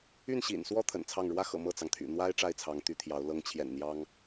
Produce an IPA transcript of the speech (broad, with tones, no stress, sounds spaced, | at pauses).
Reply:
y˥˩ n ɕ ḭ˨˩ n s w ɔ˥ t̪ʰ ə̰˨˩ n t͡sʰ ɑ˥˩ ŋ ɻ w ä˥ x ɤ̰˨˩ m ɤ˥˩ t͡s ɑ˩ ŋ t̪ʰ y̰˨˩ n̪ w a˥ ɪ̯ ʈ͡ʂ a˥˩ ɪ̯ t͡sʰ ɑ˧˥ ŋ t̪ y˧˥ t̪ʰ j ɑ˧˥ ʊ̯ l ɤ˧˥ ŋ t͡ɕʰ j ɛ̰˨˩ n n̪ j ɑ˥ ŋ